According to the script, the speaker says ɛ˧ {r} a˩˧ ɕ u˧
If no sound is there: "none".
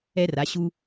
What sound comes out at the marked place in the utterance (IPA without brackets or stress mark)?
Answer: r